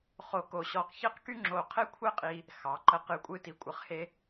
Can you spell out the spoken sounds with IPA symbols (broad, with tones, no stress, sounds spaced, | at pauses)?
χ o˧ k o˧˩ ɕ ɔ˧˩ q ç e˥˧ q k y˥ ŋ͡ǁ o˧˩ qʰ e˥ kʷʰ ɛ˥˧ qʼ i˧ | x ɑ˩˧ ǃ ə˧ q ɨ˧˩ kʷʼ ɨ˧ t i˩˧ kʷʼ ə˩˧ χ h e˧